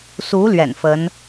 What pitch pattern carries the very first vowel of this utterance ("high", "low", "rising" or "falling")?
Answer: rising